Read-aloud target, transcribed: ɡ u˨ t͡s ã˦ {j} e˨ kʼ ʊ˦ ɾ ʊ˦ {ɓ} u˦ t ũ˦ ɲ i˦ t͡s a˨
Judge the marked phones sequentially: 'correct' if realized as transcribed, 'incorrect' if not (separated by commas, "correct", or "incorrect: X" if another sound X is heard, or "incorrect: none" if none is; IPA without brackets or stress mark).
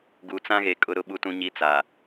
incorrect: ɣ, correct